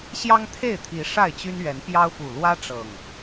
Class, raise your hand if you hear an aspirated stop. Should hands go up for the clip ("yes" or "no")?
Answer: yes